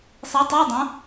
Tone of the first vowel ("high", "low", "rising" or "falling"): rising